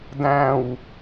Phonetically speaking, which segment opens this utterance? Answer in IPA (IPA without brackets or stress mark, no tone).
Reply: d